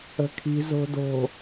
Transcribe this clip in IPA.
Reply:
ə̤ kʰ i̤ z o̤ d o̤

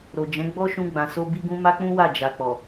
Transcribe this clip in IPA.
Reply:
ɾ o˨ d͡ʒ ɛ̃˨˦ ɡ͡b ɔ˦ ʃ ũ˧ ɡ͡b ã˨ s o˧ b i˦ ɡ ũ˦ m a˦ k͡p ũ˦ w a˦˨ d͡ʒ a˨ k͡p ɔ˨

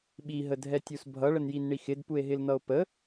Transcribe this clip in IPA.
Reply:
ɓ i ɦ ə dʱ ɛ tʲ u s bʱ ʌ ɭ ə n j i n ɳ i x ɪ d p u e̯ ɦ ɪ l n̪ ʌ o̯ p ə

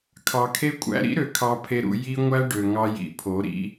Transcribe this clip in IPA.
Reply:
kʰ ɑ˨ kʰ e˦ kʷʼ æ̰˦ ɾ ḭ˦ ɾ ø˨ kʰ ɑ˨ pʰ e˨ ɾ ṵ˨ j i˦ ŋʷ æ˦ ɖ ø˨ ŋ ɑ˦ j ḭ˨ pʰ o˨˦ ɾ ḭ˦

